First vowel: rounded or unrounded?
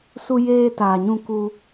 rounded